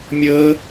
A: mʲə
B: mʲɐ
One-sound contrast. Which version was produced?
A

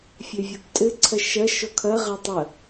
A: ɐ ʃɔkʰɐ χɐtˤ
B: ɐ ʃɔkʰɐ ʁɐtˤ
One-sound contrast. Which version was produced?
B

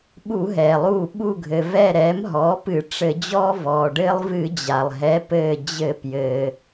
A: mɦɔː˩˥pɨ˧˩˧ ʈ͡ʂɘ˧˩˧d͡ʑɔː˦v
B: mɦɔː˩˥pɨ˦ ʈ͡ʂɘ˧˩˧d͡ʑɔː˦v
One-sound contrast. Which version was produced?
A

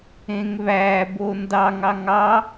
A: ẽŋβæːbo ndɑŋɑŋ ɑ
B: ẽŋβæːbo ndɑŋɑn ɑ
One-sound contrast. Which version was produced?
A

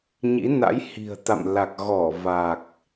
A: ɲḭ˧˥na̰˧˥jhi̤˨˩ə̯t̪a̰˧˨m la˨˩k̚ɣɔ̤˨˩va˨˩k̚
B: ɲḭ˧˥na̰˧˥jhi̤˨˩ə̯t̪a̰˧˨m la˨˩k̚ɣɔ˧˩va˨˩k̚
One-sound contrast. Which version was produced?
B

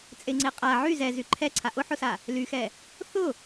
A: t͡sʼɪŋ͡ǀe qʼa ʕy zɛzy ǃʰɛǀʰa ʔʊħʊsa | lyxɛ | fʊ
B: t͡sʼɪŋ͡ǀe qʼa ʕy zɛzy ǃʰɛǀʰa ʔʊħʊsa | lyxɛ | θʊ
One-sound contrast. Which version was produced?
B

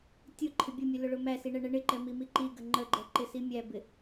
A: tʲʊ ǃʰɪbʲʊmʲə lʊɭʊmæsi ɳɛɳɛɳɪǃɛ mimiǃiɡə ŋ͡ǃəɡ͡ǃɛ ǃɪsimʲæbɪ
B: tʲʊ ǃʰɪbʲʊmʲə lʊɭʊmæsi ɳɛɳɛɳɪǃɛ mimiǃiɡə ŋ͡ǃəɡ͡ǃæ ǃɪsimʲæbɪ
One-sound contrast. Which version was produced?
A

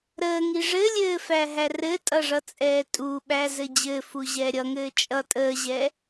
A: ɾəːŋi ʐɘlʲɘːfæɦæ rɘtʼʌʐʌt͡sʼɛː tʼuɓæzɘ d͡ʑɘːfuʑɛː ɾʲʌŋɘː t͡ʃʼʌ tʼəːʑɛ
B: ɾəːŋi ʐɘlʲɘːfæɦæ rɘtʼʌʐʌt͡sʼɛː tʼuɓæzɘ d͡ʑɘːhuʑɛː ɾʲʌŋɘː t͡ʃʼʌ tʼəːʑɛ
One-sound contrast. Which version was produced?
A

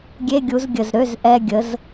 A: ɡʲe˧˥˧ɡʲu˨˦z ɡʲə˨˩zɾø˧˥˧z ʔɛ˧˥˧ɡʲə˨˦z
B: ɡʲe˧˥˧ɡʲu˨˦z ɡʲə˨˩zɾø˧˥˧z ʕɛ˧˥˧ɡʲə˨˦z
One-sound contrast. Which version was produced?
A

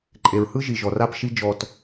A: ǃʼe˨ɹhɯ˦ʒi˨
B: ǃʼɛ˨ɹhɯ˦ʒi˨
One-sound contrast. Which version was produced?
A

